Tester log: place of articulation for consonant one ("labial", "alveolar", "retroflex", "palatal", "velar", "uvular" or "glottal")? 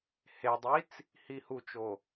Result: glottal